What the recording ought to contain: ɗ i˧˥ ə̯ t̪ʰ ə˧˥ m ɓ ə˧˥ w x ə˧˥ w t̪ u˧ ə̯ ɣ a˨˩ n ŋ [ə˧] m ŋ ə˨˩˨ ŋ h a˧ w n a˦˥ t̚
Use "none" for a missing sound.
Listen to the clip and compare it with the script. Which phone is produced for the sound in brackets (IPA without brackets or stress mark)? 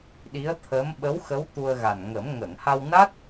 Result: ə˨˩˦